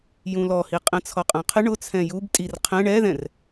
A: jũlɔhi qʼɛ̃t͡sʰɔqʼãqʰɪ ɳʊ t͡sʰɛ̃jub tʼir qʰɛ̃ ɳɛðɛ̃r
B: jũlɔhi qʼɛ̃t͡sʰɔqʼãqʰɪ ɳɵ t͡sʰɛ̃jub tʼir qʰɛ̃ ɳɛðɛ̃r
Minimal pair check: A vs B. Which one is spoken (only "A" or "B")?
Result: A